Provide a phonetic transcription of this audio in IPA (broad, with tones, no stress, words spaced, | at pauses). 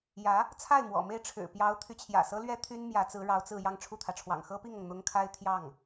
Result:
jä˧˥ | t͡sʰa˥˩ɪ̯mwɔ̰˨˩me˥˩ɪ̯ ʈ͡ʂʰɻ̩˨˩pjɑ˧˥ʊ̯ t̪ʰy˧˥t͡ɕʰjä̰˨˩sɤ˥lɥɛ˥ t̪ʰy˥n mjä˧˥t͡sɹ̩˧˥ ɻɑ˧˥ʊ̯t͡sɹ̩˥˧ jɑ˥˧ŋʈ͡ʂʰu˥˩t̪ʰä˩ʈ͡ʂʰwɑ̰˨˩ŋ xɤ˥pi˥˩ŋɤ˩ŋ n̪ʊ˥ŋ kʰa˥ɪ̯ t̪ʰjɑ˥˩ŋ